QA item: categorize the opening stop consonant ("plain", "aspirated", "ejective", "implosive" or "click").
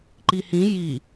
click